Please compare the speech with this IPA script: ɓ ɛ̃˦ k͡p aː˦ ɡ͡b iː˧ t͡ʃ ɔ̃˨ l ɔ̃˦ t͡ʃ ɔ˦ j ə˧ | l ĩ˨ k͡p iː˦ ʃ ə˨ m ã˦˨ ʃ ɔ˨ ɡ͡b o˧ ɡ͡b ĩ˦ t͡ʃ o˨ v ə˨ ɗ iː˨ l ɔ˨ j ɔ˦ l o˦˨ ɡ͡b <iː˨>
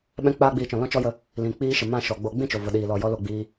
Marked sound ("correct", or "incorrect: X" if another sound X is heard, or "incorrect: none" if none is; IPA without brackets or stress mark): incorrect: iː˧